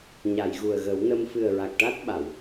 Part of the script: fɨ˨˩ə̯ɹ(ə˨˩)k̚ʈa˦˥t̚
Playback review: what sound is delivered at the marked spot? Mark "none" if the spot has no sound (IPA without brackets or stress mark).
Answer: a˨˩